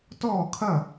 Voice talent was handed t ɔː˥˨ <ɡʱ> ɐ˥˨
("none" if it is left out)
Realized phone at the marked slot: kʰ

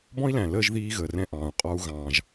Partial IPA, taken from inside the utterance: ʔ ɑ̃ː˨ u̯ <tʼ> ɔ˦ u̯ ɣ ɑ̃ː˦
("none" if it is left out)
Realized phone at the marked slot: qʼ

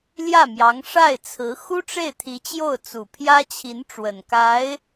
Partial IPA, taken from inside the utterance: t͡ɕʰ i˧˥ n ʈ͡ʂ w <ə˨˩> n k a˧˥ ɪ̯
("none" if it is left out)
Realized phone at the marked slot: ə˨˩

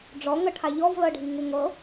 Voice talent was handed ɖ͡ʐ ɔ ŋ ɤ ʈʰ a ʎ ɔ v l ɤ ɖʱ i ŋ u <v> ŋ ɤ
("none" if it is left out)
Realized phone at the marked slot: none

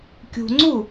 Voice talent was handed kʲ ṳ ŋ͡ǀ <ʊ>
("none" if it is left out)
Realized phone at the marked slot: u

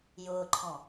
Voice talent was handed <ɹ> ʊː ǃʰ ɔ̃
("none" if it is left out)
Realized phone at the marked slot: j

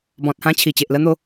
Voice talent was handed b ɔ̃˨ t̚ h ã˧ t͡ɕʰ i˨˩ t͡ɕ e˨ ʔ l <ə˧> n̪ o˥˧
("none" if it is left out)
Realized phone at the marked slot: ə˧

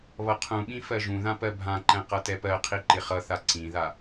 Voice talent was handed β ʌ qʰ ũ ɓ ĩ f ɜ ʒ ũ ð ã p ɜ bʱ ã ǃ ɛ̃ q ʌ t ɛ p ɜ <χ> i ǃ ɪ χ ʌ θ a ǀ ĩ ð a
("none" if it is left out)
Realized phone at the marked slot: qʰ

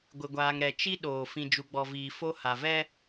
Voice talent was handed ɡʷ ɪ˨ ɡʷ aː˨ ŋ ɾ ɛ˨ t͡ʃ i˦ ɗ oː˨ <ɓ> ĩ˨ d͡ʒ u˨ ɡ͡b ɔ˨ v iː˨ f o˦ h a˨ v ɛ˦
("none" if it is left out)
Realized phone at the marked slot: f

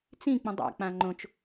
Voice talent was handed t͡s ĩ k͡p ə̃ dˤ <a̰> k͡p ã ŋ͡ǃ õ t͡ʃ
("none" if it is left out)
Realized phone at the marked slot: a̰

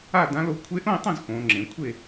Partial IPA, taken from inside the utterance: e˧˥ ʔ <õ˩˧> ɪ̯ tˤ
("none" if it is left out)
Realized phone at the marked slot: õ˥˨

